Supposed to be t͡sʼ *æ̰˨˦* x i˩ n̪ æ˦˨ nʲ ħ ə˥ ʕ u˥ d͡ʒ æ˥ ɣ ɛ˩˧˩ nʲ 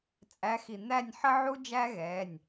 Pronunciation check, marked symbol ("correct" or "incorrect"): incorrect